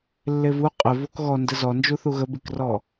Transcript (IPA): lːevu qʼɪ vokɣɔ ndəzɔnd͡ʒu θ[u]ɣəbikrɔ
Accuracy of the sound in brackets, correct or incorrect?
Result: correct